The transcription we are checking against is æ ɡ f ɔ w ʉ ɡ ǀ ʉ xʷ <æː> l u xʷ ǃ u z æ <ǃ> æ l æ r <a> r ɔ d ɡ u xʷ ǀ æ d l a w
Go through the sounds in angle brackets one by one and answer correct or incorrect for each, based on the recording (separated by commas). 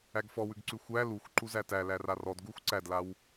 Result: incorrect, incorrect, correct